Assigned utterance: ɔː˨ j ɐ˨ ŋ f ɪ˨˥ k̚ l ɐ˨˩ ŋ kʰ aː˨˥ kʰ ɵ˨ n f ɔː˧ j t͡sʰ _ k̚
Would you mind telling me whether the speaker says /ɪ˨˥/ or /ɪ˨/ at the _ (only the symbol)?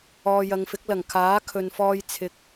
ɪ˨˥